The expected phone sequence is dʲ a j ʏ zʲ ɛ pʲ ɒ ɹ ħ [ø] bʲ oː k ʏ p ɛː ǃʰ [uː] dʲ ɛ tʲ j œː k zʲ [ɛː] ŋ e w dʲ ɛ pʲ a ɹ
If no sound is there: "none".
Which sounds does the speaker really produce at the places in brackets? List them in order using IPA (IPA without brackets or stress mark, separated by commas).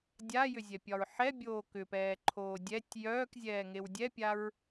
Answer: ɛ, oː, ɛː